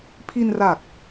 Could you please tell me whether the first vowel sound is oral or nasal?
oral